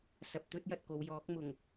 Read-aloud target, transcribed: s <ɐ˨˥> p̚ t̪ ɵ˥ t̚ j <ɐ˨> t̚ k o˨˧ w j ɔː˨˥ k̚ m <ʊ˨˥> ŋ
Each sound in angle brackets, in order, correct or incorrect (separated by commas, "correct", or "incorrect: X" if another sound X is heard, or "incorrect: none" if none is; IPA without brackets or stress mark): incorrect: ɐ˨, correct, incorrect: ʊ˨˩